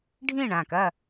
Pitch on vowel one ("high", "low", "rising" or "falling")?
falling